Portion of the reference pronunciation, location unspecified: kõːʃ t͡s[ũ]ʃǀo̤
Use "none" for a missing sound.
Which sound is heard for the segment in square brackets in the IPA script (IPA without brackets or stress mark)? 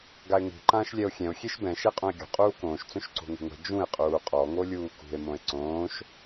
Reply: õ